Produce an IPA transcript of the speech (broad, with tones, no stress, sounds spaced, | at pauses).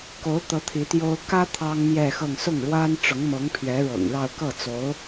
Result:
k o˧˥ ʊ̯ t̪ ɤ˧˥ t̪ʰ i˧˥ t̪ j o˥ ʊ̯ k ä˥ t̪ʰ ɑ˥ ŋ m j ɛ˥˧ x ɤ˥˧ ŋ s ʊ˥˩ ŋ ɻ w a˥ n ʈ͡ʂ ʊ˧˥ ŋ m ɤ˧˥ ŋ pʰ ɥ ɛ˧˥ ɻ ɤ̰˨˩ ŋ ɻ ɑ˥˧ ʊ̯ k ɤ˥˩ t͡s o˧˥ ʊ̯